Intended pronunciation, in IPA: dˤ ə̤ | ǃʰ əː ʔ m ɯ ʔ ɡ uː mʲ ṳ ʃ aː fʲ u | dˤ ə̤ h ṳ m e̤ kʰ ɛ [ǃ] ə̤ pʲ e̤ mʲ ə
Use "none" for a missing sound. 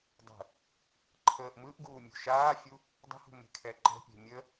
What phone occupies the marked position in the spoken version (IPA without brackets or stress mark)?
ǃ